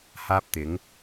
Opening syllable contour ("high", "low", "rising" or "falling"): high